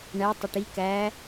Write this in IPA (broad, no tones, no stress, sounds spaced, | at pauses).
ɳ æ tˤ ə ʈ i k æ